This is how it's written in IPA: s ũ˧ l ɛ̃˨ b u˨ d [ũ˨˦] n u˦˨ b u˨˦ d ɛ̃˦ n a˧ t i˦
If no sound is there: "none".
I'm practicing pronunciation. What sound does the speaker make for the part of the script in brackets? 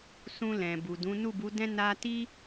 ũ˨˦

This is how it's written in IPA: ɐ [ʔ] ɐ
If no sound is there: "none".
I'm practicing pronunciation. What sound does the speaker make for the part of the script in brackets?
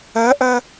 ʔ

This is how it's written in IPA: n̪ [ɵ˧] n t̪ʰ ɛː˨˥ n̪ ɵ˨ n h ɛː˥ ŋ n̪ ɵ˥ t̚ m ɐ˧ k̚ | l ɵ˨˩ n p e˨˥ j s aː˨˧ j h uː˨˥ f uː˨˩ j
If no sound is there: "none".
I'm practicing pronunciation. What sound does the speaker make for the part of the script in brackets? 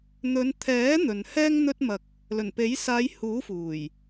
ɵ˨˧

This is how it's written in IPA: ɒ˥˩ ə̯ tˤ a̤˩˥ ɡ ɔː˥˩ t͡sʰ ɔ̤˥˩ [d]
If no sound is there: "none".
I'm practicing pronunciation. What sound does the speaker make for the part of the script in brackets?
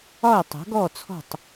tˤ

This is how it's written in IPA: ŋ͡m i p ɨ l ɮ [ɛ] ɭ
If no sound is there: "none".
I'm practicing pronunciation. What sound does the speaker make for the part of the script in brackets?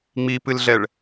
ɛ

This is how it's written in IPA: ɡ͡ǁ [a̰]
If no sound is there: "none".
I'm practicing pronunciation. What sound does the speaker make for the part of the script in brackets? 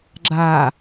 a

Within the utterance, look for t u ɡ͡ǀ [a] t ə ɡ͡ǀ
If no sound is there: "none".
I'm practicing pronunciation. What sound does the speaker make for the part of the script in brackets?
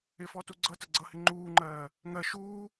ʌ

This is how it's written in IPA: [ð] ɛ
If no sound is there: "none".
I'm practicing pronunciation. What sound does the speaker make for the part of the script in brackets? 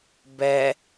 b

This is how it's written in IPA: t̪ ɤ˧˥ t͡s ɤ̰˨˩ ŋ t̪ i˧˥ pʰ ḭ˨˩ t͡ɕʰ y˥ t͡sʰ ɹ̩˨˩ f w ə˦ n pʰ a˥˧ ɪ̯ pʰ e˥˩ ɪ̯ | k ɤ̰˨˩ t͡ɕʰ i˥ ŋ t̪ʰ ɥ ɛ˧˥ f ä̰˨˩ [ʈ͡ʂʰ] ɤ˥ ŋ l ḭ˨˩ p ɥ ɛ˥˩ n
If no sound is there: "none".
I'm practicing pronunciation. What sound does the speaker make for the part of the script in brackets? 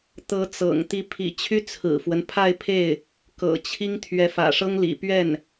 ʂ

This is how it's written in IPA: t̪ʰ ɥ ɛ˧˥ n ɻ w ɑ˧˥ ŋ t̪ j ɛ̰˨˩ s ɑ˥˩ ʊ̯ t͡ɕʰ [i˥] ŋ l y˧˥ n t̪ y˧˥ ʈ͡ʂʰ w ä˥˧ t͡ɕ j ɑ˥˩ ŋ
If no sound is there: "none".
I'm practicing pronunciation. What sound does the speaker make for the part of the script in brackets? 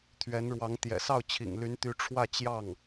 ḭ˨˩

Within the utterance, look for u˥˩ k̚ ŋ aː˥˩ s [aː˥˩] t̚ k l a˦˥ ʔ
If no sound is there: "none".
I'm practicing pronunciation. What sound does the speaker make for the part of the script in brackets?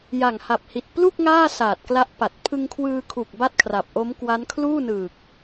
aː˨˩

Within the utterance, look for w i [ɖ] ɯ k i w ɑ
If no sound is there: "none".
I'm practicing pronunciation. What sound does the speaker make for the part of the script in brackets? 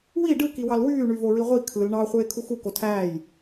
ɖ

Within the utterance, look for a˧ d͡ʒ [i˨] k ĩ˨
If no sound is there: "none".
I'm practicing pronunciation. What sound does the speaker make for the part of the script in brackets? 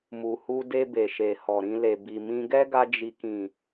i˨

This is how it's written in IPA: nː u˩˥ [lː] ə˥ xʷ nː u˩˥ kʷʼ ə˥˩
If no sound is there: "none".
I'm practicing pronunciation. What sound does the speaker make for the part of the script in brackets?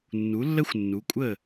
lː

